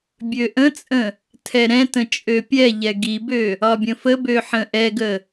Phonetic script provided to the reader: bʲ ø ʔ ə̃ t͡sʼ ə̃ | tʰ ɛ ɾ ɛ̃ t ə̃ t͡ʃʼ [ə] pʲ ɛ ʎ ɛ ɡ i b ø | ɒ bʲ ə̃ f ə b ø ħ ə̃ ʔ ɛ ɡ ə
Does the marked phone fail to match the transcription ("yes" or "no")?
yes